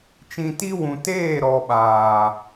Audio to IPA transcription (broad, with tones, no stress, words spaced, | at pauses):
t͡ʃĩ˨ti˧wũ˨ teː˦˨ɾɔ˨ɓaː˨